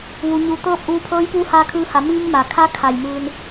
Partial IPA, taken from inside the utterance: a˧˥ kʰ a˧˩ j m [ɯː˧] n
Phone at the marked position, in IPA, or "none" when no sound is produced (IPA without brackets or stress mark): ɯː˧